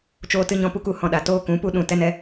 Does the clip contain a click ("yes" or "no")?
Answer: no